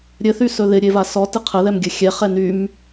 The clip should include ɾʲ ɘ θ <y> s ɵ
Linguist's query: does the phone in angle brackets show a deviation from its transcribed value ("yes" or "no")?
no